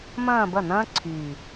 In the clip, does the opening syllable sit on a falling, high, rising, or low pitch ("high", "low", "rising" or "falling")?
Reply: falling